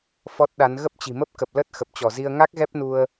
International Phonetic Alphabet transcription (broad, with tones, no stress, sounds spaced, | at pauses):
f ɔ˦˥ t̚ ɗ a˨˦ n ɣ ə˦˥ p̚ t͡ɕ i̤˨˩ m ə˦˥ p̚ k ə˨˩ p̚ l ə˦˥ t̚ x ə˨˩ p̚ t͡ɕ ɔ˧˩ z i˧ ə̯ ŋ a˦˥ k̚ ɣ ɛ˦˥ p̚ n u˧ ə̯